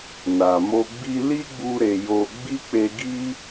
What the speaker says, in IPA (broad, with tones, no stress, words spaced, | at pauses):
na˨mo˧ ɡ͡bi˧li˦ɡ͡bu˧ ɾe˧jo˧ ɡ͡bi˦k͡pe˧ ɡi˦